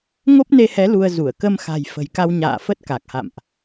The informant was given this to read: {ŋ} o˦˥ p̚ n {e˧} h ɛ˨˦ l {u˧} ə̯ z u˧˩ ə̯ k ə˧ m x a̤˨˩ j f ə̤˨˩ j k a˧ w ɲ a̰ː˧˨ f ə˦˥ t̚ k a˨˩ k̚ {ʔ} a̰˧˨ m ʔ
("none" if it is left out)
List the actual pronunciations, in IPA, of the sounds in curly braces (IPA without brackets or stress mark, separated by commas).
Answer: ŋ, e˧, u˧, h